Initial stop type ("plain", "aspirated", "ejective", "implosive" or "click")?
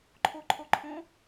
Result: click